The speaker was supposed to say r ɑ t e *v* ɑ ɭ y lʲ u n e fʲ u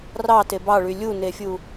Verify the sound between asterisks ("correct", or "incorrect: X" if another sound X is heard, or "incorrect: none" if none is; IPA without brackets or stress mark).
incorrect: b